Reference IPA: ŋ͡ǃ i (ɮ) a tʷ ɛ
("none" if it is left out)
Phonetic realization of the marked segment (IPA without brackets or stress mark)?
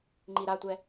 ɾ